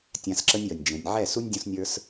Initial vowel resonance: nasal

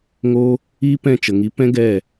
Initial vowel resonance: oral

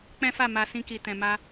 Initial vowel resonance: nasal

